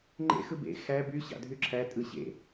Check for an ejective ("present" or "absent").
present